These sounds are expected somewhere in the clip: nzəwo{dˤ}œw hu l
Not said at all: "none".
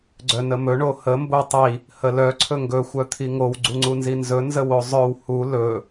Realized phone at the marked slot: zˤ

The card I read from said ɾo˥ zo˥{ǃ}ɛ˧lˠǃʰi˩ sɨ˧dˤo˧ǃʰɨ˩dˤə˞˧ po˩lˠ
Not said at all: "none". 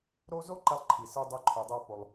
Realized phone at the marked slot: ǃ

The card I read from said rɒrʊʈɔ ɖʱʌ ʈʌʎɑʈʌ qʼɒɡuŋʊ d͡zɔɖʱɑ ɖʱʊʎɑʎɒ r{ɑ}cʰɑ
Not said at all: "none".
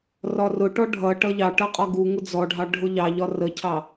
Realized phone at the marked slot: ə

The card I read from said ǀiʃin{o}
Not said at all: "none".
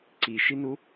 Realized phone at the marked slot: u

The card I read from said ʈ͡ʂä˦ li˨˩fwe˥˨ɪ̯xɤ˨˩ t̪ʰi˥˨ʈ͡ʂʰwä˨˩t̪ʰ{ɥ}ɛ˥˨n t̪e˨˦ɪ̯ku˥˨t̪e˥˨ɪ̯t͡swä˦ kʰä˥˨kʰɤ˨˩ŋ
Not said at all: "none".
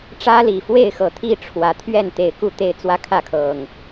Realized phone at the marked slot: ɥ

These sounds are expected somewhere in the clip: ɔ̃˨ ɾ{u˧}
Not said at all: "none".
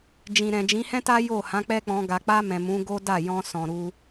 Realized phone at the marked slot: u˧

